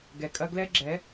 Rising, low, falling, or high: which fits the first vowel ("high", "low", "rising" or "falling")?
low